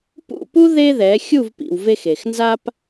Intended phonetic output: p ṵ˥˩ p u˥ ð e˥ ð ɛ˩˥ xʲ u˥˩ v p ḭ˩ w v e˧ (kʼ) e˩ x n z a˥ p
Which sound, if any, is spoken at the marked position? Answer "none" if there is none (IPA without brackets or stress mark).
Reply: x